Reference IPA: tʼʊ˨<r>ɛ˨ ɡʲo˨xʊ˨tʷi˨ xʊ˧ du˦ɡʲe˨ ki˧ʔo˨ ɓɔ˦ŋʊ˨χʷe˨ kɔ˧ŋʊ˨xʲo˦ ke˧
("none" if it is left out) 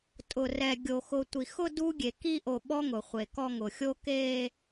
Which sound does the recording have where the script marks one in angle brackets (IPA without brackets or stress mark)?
r